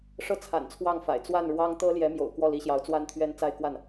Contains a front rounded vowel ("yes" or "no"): no